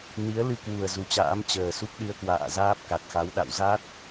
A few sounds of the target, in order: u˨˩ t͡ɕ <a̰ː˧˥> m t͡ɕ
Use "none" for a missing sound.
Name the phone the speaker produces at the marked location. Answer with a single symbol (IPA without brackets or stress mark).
a̰ː˧˥